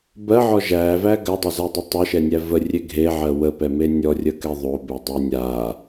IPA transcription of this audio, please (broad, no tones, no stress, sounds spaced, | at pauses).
b ɜ ʕ ɔ ʒ æ v æ ɡ ɜ dˤ e z a dˤ ə tˤ o ʃ ɛ nʲ æ v ə rʲ e ɡʱ e ʕ ɜ w ə p ɛ m e nʲ ɔ rʲ ə k ɛ ðˤ o b e dˤ ɛ nʲ a